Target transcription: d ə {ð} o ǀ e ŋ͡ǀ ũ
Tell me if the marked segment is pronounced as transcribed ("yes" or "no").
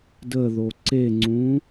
yes